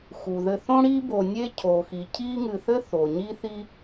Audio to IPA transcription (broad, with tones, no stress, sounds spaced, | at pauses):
x u˩ ð ɘ˨ θ õ˥ ɽ i˥ b o˨ nʲ e˥ cʰ o˩ x i˩ cʰ i˦ ŋ ɨ˨ θ ɘ˥ θ o˩ ɲ i˥ θ i˥